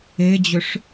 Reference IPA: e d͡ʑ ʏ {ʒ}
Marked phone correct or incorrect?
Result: incorrect